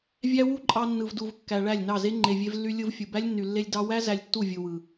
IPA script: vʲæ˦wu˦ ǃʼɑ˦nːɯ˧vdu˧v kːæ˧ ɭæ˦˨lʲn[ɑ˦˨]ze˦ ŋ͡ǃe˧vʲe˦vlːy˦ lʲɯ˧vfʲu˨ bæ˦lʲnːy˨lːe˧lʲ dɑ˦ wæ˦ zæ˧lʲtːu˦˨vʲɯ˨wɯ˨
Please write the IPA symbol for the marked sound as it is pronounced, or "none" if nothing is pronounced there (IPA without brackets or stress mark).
ɑ˦˨